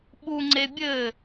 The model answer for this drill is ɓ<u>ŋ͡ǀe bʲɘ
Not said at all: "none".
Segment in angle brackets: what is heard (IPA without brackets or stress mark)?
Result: u